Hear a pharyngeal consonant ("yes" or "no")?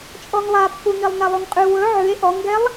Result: yes